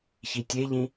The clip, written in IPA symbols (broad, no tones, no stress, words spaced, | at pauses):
çitʲeʎĩ